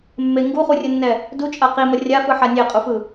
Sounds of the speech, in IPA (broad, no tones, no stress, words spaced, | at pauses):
mːe ŋɡuχurʲɯnːɛ | dut͡ʃʼa qimʌ rʲafɯħa nʲeqʼufɯ